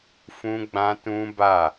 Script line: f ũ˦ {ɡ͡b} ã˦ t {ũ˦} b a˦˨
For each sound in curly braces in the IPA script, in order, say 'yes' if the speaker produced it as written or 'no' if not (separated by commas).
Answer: yes, yes